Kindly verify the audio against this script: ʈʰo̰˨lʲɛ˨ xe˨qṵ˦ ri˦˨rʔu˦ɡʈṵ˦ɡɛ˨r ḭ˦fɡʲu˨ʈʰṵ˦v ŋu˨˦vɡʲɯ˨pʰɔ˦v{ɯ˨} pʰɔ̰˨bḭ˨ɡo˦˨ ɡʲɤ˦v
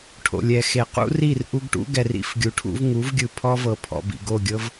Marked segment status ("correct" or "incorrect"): incorrect